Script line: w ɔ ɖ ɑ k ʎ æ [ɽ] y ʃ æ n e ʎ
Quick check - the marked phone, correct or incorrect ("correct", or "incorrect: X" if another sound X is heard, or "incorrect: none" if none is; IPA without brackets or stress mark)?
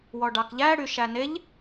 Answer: correct